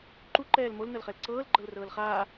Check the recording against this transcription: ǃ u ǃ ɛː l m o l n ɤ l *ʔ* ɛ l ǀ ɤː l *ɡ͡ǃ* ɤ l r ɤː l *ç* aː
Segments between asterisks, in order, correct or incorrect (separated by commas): incorrect, correct, incorrect